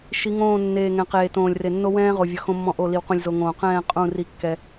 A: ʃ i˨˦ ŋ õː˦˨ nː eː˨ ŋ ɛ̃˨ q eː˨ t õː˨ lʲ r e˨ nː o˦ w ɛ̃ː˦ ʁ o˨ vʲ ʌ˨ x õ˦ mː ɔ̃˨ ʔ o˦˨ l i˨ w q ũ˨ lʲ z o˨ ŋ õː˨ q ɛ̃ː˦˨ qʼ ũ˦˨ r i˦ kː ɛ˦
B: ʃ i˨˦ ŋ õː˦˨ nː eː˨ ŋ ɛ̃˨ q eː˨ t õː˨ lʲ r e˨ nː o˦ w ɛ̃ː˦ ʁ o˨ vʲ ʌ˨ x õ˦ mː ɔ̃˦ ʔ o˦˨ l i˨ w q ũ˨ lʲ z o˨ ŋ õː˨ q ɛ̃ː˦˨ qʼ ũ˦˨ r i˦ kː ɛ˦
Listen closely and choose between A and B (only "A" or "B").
B